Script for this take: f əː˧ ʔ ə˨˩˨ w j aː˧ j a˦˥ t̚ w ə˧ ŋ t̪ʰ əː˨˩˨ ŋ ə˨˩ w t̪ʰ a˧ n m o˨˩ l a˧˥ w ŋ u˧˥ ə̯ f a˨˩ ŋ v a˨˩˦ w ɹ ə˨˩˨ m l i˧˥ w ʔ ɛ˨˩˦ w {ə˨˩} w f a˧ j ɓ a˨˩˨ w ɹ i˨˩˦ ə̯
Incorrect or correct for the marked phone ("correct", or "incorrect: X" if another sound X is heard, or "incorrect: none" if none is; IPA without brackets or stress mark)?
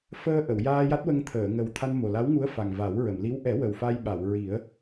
correct